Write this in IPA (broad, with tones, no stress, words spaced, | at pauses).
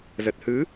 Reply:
zə˨˩t̚hɨ˨˦